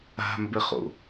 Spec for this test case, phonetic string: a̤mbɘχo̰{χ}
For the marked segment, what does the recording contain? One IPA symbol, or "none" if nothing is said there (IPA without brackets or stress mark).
none